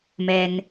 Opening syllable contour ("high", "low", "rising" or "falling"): low